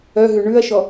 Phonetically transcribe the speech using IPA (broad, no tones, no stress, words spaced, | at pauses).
œɦʉ ɳʉɐ̯ʃɔ